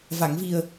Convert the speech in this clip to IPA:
v a˨˩˨ ŋ v i˨˩ ə̯

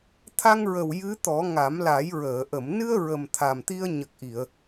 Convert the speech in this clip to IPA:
t̪ʰ a˧ ŋ ɹ ə˨˩ w j ɨ˧˥ t̪ ɔ˨˩˦ ŋ a˨˩˦ m l a˨˩˦ j ɹ əː˨˩˨ ʔ ə˨˩˨ m n ɨ˧ ə̯ ɹ ə˨˩ m t̪ʰ a˨˩ m t̪ i˧ ə̯ ɲ ə˨˩ k̚ ʔ i˨˩˨ ə̯

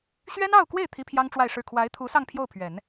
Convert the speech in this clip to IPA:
ɕ ɥ ɛ˥ n ɑ˥˧ ʊ̯ k w e˥˩ ɪ̯ t̪ʰ i˥ pʰ j ɑ˥ ŋ ʈ͡ʂ w a˥˧ ɪ̯ ʂ ɻ̩˥˩ kʰ w a˧˥ ɪ̯ t̪ʰ u˧˥ s ɑ˥˧ ŋ pʰ j o˥˩ ʊ̯ pʰ ɥ ɛ˨˩˦ n

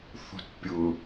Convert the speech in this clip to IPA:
θ ṳ t pʲ ʊ

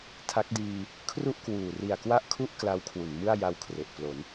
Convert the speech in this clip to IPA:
tʰ a˦˥ k̚ d iː˧ | kʰ r u˥˩ ʔ k w uː˨˩ r i˨˩ a̯ k w a˥˩ ʔ kʰ u˥˩ ʔ k l a˦˥ w kʰ w u˩˦ n m ɯ˥˩ a̯ j a˧ w kʰ r e˨˩ ʔ p l o˩˦ n

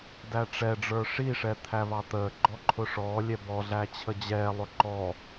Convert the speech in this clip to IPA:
d æ ʈ͡ʂ ɛ ɖ͡ʐ ə˞ ʂ i ʂ ɛ t̪ʰ æ β ɑ t̪ əː ɡ͡ǃ ɔ ǃʰ ʊ ʂ ɔː lʲ ɛ b ɔ ɮ æ t͡ɕʰ ə d͡ʑ ɛː lˠ ʊ ǃ ɔ

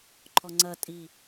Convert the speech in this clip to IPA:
ǃʰ ɔ ŋ͡ǀ ɐ tʼ i

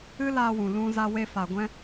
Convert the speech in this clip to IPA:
ɨ˦ l aː˧ w ũ˨ l ũ˦ z a˧ w e˧ f a˨ ɡʷ ɛ̃˦

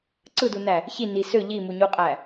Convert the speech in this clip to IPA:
ǀ ɯ d u n æ | ç i n i s ø ʎ i m u ɲ u qʼ æ

